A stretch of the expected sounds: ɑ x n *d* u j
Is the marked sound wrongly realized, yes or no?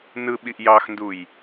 no